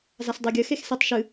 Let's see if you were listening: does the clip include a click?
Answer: no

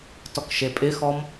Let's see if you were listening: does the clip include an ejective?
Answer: yes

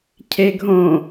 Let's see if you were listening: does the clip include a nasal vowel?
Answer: yes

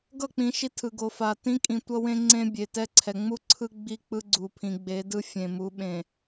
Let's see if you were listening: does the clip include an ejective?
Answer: yes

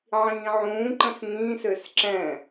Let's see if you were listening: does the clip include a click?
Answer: yes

